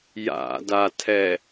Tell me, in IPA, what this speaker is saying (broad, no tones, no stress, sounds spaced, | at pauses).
j a̰ d a tʰ ɛ